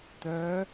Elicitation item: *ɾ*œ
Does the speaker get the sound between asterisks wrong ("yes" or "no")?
yes